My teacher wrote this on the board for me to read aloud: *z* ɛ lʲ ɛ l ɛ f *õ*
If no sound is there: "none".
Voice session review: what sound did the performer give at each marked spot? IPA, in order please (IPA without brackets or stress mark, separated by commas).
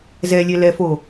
z, o